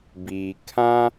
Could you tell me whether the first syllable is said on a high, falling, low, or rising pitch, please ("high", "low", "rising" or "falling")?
low